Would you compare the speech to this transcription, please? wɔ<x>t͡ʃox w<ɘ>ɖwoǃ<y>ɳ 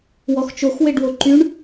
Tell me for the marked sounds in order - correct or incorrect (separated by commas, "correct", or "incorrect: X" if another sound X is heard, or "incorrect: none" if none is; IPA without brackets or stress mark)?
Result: correct, incorrect: e, correct